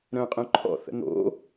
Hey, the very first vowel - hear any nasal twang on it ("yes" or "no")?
yes